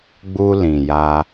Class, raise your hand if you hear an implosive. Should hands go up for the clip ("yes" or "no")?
no